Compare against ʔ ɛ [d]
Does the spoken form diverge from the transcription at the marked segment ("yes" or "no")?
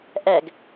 yes